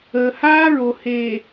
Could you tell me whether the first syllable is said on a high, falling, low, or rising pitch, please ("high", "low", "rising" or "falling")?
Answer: low